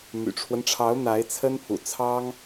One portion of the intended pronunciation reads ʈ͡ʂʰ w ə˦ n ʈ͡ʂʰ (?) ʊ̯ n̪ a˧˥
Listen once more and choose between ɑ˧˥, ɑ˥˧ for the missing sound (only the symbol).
ɑ˧˥